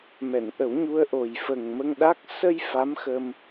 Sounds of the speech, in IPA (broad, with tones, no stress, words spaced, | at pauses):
mɛ˨˩˨nʔə˨˩˦wɲu˧ə̯ʔo˨˩j fə˨˩ŋmə˧ŋɗa˦˥k̚ sə˧j fa˧˥mxəː˧m